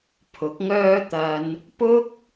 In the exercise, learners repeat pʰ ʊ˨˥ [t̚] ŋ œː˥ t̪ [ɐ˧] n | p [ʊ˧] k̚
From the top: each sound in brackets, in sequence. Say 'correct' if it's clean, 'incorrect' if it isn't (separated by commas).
incorrect, correct, incorrect